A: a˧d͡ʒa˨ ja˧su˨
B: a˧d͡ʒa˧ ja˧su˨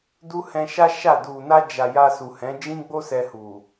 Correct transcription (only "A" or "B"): A